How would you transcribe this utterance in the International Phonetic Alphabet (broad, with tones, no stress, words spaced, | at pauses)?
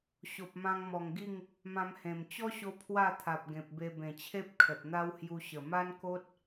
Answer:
ɕo˨p̚mã˧ŋmɔ˨˩ŋɡi˥˧ŋ | mã˧mhẽ˨˩m t͡ɕɔ˦ɕo˧ pʰwa˥˧t̪ʰa˨p̚ ɡẽ˨p̚be˧ bẽ˨˩t͡ɕʰe˦p̚ kʰə˨t̚n̪a˦whju˧ ɕə˨˩ma˦nko˦t̚